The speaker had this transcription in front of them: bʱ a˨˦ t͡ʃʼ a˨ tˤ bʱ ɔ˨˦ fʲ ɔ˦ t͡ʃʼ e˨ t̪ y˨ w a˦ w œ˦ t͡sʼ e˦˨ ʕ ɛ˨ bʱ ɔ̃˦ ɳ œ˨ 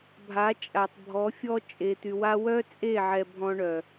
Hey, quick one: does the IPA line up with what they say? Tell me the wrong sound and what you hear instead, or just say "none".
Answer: none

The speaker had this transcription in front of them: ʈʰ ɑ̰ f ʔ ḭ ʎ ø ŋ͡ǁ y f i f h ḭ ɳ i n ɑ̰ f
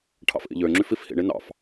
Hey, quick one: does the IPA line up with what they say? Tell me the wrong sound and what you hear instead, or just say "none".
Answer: none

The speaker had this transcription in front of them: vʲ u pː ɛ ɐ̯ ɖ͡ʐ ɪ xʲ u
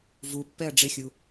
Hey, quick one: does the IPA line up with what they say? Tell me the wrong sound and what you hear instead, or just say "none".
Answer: vʲ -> v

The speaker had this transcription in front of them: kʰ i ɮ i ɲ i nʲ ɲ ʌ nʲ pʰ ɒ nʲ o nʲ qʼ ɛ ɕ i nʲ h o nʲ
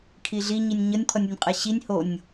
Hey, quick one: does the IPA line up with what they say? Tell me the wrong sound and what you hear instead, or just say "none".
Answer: ɒ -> ʌ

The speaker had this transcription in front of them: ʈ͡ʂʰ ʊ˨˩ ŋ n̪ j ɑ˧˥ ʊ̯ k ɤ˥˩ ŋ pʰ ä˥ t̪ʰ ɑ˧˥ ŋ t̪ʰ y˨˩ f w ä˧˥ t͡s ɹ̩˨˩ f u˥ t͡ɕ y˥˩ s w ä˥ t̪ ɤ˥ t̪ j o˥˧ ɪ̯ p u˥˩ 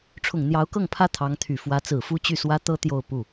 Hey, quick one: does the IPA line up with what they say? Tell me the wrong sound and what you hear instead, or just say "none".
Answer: ɪ̯ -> ʊ̯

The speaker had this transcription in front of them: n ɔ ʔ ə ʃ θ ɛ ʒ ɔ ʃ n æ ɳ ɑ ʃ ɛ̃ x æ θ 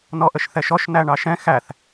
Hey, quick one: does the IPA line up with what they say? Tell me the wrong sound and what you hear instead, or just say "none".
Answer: ʒ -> ʃ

